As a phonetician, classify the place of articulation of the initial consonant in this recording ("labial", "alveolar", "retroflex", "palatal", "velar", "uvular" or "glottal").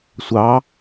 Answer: alveolar